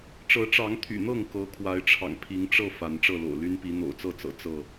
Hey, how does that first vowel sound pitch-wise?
rising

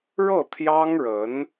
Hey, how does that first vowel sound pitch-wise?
falling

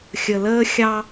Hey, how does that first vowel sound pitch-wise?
low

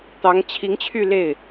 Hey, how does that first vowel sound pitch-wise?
rising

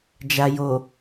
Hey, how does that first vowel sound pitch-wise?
low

